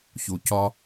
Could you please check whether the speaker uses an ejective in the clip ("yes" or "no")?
no